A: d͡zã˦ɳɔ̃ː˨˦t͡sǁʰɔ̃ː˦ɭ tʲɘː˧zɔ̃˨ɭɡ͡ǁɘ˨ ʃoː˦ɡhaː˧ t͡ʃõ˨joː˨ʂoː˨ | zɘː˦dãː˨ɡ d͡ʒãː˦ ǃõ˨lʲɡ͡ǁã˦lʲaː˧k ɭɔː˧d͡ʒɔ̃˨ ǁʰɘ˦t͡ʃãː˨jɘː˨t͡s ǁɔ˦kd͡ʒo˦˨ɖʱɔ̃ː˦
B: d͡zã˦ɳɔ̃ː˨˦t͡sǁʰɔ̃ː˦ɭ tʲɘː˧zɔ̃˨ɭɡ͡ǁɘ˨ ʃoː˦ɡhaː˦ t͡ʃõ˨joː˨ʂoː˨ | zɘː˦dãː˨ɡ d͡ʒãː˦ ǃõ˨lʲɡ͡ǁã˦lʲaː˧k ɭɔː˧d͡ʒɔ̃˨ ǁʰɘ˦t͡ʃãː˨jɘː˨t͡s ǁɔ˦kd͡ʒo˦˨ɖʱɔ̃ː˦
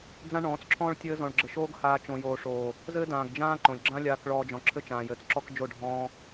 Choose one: A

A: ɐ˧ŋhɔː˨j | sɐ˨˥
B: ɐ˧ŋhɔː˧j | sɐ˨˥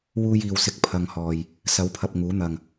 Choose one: A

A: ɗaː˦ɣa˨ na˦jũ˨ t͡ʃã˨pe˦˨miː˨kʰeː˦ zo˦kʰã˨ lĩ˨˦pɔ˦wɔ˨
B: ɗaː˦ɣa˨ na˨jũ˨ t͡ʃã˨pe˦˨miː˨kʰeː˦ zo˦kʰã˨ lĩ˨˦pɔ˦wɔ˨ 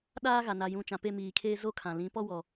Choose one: B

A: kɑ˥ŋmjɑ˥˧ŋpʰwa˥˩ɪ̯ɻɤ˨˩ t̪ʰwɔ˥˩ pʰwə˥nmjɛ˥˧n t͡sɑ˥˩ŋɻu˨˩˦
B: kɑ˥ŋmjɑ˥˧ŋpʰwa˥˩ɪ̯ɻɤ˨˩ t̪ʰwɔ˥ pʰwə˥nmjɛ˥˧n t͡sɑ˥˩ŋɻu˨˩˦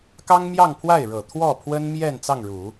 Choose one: A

